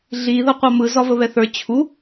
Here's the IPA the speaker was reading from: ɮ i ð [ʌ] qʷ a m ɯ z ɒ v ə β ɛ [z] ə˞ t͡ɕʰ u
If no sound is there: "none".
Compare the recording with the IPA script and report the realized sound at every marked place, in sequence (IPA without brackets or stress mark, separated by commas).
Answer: ʌ, θ